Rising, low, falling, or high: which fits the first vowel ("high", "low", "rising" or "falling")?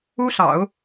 high